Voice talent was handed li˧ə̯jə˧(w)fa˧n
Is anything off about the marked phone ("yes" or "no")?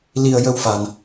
no